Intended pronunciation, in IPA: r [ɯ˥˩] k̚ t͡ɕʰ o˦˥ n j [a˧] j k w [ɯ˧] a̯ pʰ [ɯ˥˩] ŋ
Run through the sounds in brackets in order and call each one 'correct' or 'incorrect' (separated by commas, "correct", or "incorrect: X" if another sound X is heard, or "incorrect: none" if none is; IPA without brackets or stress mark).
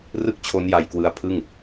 correct, correct, correct, correct